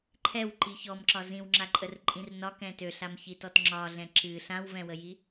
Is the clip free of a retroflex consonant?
yes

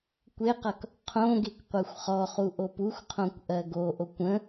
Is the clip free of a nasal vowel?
no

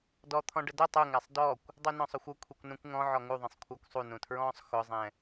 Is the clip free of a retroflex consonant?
no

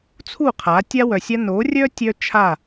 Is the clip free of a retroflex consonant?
yes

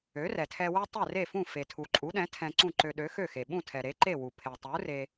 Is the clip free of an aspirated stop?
no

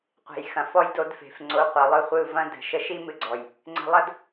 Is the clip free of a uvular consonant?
no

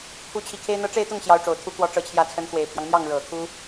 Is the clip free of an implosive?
yes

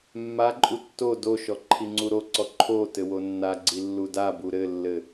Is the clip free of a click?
no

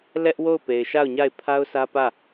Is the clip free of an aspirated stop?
no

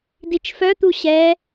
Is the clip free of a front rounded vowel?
no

